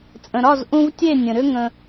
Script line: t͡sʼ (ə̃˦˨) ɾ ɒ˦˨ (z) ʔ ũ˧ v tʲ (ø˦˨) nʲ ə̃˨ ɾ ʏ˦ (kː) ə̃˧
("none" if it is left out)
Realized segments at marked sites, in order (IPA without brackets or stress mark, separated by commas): ə̃˨, z, e˦˨, ŋ